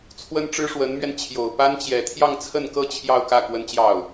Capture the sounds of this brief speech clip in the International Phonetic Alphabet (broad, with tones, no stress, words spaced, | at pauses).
t͡sʰwə˥nʈ͡ʂɻ̩˥ʂwə˧˥nmɥɛ˧n t͡ɕʰjo˨˩ʊ̯ pa˥nt͡ɕjɛ˨˩ t̪ʰjɑ˥˧ŋt͡sʰə˥˧nkɤ˥˧ t͡ɕʰjɑ˥˧ʊ̯kä˥˩ kwə˥nt͡ɕjɑ˥˩ʊ̯